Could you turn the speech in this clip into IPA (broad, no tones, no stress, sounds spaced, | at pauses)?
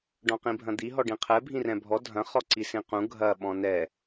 ɖ ɔ̃ q ĩ bʱ ɐ̃ d̪ i ɦ ɔ ɖ ĩ qʰ ɛ bʱ ĩ r ɛ̃ bʱ ɔ dʱ ɐ̃ χ ɔ ǀ i s ĩ q ũ ɡʱ ɐ ɓ ɔ̃ n ɛ